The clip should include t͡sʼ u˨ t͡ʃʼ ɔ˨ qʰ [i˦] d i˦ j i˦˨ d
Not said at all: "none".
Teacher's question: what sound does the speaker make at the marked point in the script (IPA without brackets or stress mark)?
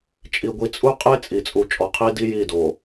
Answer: i˦